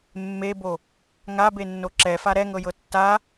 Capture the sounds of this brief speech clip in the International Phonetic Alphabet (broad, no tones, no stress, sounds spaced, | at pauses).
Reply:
mː e b o | ŋ a b e nː o ǁ ɛ f a ɾ ɛ ŋ ɤ j ɤ tː a